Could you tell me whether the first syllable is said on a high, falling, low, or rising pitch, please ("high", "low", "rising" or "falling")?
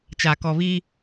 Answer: low